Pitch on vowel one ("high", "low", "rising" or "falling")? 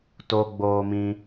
high